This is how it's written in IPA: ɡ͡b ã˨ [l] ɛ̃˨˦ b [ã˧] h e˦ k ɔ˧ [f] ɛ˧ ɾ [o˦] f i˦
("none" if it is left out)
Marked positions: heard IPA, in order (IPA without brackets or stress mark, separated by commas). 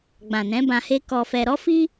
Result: n, ã˧, f, ɔ˦